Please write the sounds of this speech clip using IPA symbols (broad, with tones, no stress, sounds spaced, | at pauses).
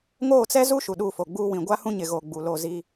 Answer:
ŋ oː˦˨ t͡s ɛ˦ z u˦ ʃ u˨ ɗ uː˦˨ f o˨ ɡ͡b uː˦ w ĩ˨ ɡʷ a˦ h ũ˦ ɲ ɪ˨ ɣ oː˨ ɡ͡b u˨ l o˦˨ z i˦